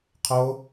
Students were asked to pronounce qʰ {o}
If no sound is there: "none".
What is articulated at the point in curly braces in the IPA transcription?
o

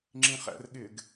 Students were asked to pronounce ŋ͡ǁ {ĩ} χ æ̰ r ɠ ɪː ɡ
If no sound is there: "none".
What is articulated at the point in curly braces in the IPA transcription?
ĩ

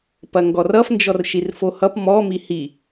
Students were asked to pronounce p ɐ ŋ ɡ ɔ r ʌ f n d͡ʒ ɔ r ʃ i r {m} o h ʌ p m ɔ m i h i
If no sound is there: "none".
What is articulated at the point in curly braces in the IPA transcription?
f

